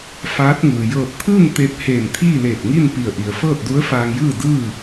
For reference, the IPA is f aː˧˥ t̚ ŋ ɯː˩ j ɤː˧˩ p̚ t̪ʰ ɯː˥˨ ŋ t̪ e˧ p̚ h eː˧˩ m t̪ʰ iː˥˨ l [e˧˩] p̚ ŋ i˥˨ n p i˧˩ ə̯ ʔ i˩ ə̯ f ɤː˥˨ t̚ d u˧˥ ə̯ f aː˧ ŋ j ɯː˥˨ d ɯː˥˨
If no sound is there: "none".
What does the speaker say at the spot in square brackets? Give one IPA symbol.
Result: eː˧˩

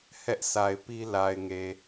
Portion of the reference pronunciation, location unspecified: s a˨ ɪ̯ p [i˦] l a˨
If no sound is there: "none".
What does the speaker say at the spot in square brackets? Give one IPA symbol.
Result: i˦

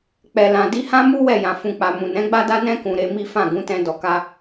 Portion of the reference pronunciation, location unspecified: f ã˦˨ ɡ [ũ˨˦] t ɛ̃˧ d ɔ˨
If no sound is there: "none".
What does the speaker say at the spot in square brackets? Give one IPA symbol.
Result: ũ˨˦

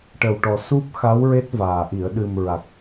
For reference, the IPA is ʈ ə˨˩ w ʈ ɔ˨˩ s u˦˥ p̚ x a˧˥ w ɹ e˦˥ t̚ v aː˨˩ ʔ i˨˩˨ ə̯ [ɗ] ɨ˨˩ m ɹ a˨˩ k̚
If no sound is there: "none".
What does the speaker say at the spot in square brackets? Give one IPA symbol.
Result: ɗ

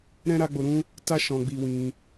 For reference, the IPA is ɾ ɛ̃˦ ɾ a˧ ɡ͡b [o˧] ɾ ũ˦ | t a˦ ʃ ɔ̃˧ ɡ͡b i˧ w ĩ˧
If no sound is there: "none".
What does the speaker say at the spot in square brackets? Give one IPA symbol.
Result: o˧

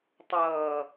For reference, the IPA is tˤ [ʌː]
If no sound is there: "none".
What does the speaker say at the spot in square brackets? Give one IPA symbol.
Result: ʌː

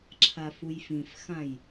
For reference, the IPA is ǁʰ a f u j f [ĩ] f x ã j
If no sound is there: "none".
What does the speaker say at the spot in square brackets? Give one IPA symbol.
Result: ĩ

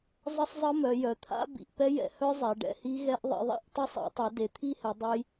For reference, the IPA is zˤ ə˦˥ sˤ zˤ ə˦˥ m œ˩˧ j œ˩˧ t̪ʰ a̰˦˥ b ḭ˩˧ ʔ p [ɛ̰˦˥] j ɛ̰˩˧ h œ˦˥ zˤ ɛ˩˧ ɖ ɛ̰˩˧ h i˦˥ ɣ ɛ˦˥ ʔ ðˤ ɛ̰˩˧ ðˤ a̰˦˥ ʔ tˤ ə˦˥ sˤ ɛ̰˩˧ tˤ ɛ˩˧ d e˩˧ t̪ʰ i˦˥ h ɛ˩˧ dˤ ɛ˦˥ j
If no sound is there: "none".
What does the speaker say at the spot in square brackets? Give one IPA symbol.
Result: ɛ˦˥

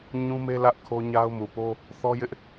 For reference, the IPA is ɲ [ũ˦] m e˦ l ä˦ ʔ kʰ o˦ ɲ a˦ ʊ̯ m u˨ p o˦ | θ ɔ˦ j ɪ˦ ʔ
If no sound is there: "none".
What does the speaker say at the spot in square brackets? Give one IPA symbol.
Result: ũ˦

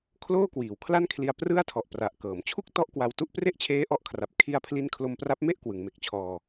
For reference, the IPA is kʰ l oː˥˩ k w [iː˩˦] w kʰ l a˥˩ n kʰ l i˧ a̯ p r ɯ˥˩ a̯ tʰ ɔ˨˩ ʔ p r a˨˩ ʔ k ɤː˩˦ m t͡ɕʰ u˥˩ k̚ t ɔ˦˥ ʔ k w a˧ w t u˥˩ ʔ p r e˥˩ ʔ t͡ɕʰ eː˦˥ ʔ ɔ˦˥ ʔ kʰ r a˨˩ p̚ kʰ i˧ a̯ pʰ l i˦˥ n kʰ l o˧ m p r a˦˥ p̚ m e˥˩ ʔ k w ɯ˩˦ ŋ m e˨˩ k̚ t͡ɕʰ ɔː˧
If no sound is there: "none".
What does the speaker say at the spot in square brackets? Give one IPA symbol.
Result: iː˩˦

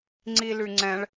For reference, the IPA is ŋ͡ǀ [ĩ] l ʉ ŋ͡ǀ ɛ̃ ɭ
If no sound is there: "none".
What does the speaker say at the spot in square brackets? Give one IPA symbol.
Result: i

